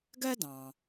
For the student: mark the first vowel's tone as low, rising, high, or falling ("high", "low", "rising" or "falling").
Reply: high